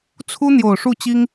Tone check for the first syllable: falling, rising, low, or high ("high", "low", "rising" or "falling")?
high